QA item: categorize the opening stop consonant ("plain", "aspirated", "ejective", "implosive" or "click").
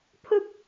aspirated